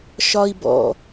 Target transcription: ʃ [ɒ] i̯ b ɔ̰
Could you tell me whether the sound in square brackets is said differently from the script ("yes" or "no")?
no